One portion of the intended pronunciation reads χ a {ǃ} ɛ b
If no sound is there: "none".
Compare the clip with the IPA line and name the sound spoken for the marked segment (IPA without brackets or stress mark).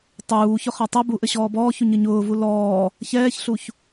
tˤ